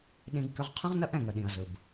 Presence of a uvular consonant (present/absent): present